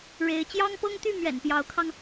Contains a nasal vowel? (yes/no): no